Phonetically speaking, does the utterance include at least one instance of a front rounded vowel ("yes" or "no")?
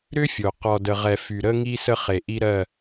yes